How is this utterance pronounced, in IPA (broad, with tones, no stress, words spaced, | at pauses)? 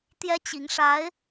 t̪jɛ˥t͡ɕi˧˥ŋʂa˧˥ɪ̯